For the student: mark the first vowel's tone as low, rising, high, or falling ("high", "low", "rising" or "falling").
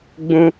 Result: high